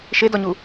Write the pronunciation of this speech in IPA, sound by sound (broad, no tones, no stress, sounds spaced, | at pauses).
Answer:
ʃ e d ɔ ɲ u